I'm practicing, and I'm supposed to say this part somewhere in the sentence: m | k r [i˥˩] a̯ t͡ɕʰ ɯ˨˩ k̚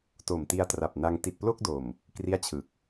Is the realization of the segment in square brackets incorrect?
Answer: no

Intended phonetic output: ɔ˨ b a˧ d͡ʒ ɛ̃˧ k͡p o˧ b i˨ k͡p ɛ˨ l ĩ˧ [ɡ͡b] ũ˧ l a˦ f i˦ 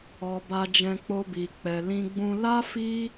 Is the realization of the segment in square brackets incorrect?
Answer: no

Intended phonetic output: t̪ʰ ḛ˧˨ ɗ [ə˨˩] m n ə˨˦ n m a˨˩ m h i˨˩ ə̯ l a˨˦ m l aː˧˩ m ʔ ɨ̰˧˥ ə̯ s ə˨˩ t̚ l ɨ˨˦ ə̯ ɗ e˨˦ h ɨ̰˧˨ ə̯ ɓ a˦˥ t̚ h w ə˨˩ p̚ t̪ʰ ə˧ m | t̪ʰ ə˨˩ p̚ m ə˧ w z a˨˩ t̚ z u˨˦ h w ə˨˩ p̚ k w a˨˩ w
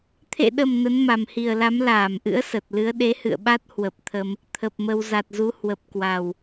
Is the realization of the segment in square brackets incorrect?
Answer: no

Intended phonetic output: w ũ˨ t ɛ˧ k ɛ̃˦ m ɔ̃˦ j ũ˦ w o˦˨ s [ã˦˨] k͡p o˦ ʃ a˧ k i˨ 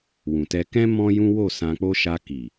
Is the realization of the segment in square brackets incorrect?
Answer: yes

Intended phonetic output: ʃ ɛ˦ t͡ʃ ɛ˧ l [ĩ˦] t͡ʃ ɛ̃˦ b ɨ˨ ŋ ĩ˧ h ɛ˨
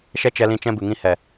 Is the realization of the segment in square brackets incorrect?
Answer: yes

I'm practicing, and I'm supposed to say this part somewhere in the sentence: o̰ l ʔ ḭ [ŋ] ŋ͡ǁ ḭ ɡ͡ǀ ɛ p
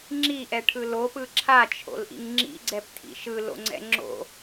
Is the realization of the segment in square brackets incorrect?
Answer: no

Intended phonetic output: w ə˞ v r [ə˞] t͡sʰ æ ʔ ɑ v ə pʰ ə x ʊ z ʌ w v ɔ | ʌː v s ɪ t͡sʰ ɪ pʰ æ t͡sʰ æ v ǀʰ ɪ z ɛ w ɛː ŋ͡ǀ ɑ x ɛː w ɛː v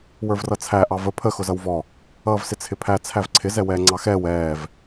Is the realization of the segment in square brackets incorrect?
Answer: yes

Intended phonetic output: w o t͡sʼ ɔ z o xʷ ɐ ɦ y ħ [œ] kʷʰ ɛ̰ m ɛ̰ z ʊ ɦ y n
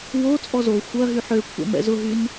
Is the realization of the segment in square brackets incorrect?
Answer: yes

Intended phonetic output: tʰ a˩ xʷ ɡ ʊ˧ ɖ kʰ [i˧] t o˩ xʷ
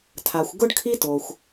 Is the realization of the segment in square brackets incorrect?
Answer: no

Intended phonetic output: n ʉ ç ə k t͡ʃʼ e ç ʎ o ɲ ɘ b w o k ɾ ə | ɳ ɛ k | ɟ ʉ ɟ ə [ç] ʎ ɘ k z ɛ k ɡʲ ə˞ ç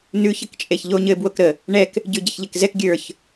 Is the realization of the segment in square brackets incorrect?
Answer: no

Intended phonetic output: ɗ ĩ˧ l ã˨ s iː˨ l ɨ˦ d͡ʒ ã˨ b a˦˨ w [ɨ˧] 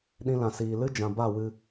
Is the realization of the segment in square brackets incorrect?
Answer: no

